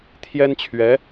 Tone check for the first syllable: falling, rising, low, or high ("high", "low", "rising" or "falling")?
high